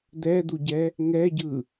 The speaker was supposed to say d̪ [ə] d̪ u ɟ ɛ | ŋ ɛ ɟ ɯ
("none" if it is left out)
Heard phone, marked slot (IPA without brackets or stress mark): ɛ